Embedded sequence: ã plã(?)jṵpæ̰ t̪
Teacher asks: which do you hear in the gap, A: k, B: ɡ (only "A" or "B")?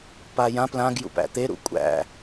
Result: B